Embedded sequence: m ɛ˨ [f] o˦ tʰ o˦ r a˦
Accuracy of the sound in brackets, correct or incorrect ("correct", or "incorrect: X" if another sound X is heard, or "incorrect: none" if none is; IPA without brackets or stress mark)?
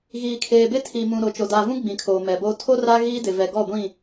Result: incorrect: b